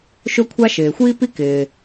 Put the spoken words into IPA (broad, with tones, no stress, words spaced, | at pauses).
ʃʊ˥kʷʰa˥ ʃɪː˩xʷiː˥pi˥kɪː˩